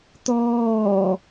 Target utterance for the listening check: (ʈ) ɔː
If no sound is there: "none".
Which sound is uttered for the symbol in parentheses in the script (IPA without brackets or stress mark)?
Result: t̪